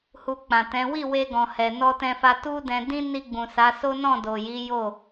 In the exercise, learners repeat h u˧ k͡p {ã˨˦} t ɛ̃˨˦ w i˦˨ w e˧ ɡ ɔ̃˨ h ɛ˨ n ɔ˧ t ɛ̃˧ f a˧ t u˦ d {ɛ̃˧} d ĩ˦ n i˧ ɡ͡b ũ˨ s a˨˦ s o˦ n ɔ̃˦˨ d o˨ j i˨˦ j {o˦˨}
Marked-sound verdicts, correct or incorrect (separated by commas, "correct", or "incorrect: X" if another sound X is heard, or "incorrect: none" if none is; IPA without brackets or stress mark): incorrect: ã˨, correct, correct